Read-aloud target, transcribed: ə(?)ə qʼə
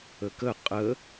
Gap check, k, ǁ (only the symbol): k